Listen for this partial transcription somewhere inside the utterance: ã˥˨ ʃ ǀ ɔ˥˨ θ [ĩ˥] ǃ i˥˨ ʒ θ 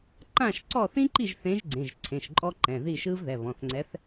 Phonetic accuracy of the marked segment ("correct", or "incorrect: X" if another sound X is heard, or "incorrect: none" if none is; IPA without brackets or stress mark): correct